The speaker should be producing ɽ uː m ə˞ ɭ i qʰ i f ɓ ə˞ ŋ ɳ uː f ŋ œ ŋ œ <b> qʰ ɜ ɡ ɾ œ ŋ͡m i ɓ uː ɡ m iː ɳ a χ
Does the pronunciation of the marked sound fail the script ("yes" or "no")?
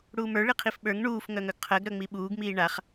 yes